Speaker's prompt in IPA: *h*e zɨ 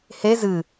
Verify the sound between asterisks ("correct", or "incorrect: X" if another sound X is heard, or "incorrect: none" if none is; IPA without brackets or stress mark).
correct